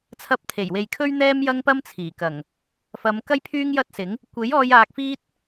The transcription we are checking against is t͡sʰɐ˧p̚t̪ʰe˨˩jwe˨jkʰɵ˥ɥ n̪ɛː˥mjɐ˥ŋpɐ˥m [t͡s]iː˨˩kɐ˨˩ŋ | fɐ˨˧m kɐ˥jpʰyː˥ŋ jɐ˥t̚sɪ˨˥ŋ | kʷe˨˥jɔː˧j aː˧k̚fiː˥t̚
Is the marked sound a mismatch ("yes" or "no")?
yes